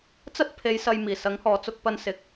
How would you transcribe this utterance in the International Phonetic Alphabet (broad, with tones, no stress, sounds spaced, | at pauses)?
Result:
t͡s ɐ˥ t̚ pʰ e˨˧ j s ɐ˨ j m iː˨˩ s ɐ˨˥ ŋ h ɔː˨ t͡s ʊ˧ k̚ p ɐ˧ n s ɪ˨˥ k̚